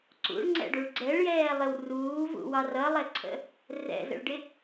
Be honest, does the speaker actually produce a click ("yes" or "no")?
yes